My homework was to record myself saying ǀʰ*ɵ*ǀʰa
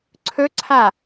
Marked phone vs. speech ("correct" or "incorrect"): correct